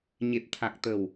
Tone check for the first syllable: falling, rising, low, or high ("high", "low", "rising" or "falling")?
low